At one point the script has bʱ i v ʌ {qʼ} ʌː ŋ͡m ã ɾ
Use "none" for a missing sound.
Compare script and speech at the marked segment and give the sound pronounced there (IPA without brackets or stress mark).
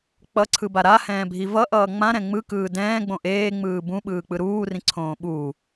ʔ